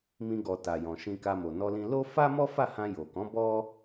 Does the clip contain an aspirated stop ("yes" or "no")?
no